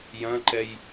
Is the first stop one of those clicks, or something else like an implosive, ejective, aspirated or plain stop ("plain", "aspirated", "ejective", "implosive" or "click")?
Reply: click